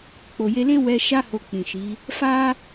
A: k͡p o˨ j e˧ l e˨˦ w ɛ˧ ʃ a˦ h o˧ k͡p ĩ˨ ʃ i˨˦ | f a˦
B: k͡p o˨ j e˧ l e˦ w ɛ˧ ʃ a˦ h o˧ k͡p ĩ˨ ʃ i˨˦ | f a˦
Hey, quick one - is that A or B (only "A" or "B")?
B